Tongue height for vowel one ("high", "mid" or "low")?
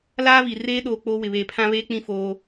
low